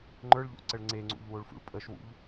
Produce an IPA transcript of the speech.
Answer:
ŋ͡ǃ ə˞ ɭ ʎ o̰ ǀ ə ɭ ŋ͡ǀ e ŋ͡ǀ ṵ ʎ w o ɭ f ṵ ɭ pʼ ə ʃ w ṵ ʎ

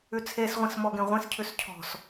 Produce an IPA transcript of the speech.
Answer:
ʉ t͡sʰ e s ʁʷ ĩ s m ɔ ɡ ẽ ʁʷ ẽ s cʰ ʉ s cʰ ɔ̤ s

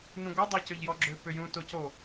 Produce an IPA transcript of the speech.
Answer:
n ũ ɡʷ a dˤ a c ø ʎ j ɔ ɡ͡ǁ ø p ʏ j ũ t o c o

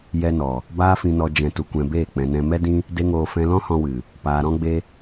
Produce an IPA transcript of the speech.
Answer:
j ɛ˧ n ɔ˨ | b aː˧ f ĩ˨ n ɔ˨ d͡ʒ ɛ̃˨ t u˨ kʷ ɛ̃˨ b eː˦˨ k͡p ɛ̃˨ n ɛ̃˧ m ɛ˦ d ĩ˦ | d e˧ ŋ oː˨ f ɛ̃˧ l ɔ̃˦ h ɔ̃˧ w ɨ˨ | p aː˨ ɾ ɔ̃˦ ɡ͡b e˦

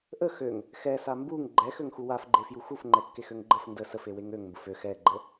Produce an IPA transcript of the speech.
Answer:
ʔ ə x ø ŋ | x ɛ s a m b u ŋ ɡ͡ǃ ɛ x ø ŋ x u w a f ɡ͡ǃ e f j u x u f ŋ͡ǃ ɛ kː e x ø ŋ ɡ͡ǃ ə f n d ə s ə f e w e ŋ ø ŋ m b ə f ø x ɛ ɡ͡ǃ ə

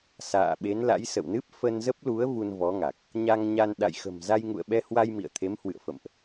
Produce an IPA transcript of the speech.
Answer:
s a̰ː˧˨ ɓ e˨˦ n l a̰˧˥ j s ə̰˧˨ w n ɨ˦˥ p̚ f ə˧ n z ə˦˥ p̚ l u˨˦ ə̯ v u˧ n v ɔ˨˦ ŋ a˨˩ k̚ | ɲ a˧ ŋ ɲ a˧ n ɗ a̰˧˨ j x ə̤˨˩ m z a˧ j ŋ ṵ˧˨ ə̯ ɓ ɛ˧ h w a˧ j m ḭ˧˨ ə̯ t̪ʰ e˨˦ m h w ɨ̰˧˨ ə̯ f ə̰˧˨ m ʔ

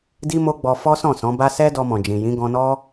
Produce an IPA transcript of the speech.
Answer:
d i˦ m o˦ ɡ͡b ɔ˧ f ɔ˦ s ɔ̃˦˨ s ɔ̃˨˦ b a˦ s ɛ˦ d ɔ˧ m ɔ̃˨ d͡ʒ ĩ˨ j ĩ˨˦ ɡ ɔ̃˧ n ɔ˦

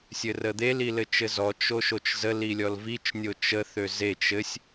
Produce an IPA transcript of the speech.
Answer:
sʲ ɘ r ə d̪ e l i l ɘ t͡ʃ ɘ z ɔ t͡ʃ o ʃ o t͡ʃ z ə l i lʲ ɔ l v i t͡ʃ nʲ o t͡ʃ ə θ ø z e t͡ʃ ɘ sʲ

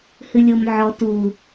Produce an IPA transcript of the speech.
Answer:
h ɨ lʲ o m ʕ ɔ t u

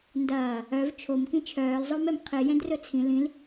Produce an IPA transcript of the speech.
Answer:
n d ɐː | œ v t͡ʃʰ o m k ĩ t͡ʃʰ œː l zˤ o m ɛ m qʰ i j ɛ̃ d r ɵ t͡sʰ ĩ l ĩ l

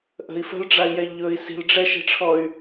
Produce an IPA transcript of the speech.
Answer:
ʔ ə̤ i̯ f ə̤ l ɖ͡ʐ a i̯ j ɛ ʎ ɵ i̯ s i̤ l ɖ͡ʐ ɛ ʃ e̤ ʈ͡ʂʰ ɔ y̯

